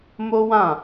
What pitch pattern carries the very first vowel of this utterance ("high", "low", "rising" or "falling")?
high